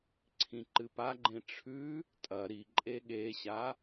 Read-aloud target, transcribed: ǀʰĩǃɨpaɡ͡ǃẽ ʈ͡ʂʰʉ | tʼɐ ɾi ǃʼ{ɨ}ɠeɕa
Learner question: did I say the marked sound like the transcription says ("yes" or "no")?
no